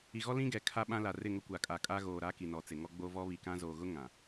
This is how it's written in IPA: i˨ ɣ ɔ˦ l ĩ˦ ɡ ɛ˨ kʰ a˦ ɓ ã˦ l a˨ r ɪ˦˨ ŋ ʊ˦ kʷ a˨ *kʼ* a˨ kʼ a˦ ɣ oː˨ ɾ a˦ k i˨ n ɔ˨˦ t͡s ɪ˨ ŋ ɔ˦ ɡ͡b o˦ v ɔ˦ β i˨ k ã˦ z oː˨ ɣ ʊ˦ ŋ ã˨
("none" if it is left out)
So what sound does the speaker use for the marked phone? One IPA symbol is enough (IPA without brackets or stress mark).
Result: kʼ